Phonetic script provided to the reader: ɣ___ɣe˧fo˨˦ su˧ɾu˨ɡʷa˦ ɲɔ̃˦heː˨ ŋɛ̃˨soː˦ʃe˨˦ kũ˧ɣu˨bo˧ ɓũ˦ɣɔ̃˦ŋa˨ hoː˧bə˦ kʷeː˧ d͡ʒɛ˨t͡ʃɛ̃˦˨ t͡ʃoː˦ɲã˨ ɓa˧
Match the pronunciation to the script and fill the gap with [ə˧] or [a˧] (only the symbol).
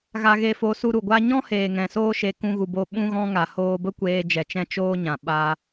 a˧